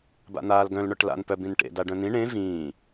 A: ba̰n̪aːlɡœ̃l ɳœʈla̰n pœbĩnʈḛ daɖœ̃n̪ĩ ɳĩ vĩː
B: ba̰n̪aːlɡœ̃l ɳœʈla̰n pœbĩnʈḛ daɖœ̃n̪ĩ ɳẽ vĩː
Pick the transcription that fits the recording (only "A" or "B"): B